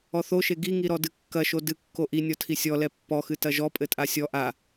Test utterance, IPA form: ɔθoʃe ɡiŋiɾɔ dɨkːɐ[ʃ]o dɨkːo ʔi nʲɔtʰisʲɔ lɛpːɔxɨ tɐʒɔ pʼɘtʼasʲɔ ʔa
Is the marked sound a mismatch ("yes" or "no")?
no